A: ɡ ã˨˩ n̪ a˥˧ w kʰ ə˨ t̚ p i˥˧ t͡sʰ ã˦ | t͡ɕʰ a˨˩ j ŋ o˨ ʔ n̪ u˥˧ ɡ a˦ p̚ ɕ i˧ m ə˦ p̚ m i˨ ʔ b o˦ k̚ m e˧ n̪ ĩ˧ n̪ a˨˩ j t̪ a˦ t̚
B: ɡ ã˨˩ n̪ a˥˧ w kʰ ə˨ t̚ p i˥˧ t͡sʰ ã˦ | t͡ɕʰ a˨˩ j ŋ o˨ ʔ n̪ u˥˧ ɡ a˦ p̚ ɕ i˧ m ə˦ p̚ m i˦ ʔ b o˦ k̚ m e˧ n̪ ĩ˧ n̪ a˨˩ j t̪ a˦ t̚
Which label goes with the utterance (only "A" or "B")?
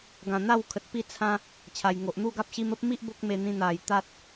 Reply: B